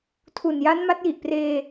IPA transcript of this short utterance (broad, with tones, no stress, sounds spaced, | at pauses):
tʰ u˨˩ n j a˦˥ n m a˦˥ t̚ j i˨˩ ʔ p r eː˧